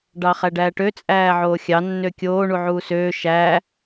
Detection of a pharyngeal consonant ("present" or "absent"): present